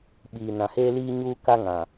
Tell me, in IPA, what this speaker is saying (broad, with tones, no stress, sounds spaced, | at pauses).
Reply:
ɓ iː˨ n ã˨ h eː˦ l iː˦ ɲ uː˦ k a˦ ŋ ã˨